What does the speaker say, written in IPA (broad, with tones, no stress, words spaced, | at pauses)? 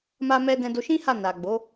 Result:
ma˧mɛ˧ dɛ̃˧do˧ʃĩ˦ha˦˨ na˨ɡ͡bo˨˦